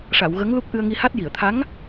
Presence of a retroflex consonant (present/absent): present